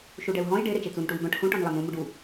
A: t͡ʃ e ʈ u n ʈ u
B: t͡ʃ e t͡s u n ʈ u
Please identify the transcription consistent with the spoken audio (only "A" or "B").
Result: B